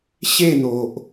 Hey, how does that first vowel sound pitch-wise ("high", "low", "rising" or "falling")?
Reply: falling